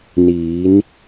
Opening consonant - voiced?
yes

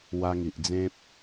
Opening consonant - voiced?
yes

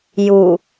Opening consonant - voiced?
yes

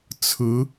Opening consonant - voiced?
no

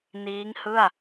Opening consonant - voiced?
yes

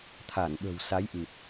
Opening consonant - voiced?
no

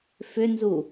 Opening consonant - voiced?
no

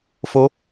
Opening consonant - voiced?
no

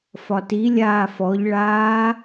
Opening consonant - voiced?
no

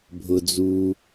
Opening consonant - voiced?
yes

